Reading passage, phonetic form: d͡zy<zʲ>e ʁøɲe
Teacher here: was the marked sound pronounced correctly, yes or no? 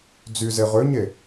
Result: no